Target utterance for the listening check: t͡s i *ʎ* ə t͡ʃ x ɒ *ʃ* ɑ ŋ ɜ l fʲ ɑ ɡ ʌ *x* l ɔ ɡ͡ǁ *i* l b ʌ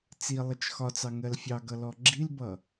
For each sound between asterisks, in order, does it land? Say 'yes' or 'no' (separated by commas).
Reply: no, no, no, yes